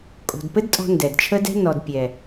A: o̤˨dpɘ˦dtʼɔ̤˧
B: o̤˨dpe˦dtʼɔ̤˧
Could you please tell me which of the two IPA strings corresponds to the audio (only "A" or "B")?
A